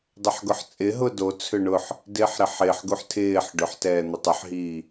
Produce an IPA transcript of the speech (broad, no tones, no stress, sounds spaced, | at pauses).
dˤ ʏ ħ ɡ ʊ ħ t͡sʼ ɪ ɦ ʊ d o t͡sʰ ʏ ɳ ʊ ħ | d ɪː ħ ɾ ɪ ħ ɪː ħ ɡ u ħ tʰ ɪː ħ ɖ ʏ ħ t ɛː n̪ ʊ tˤ ʊ ħ ɦ iː